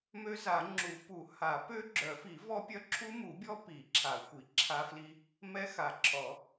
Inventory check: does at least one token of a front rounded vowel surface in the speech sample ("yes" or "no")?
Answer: yes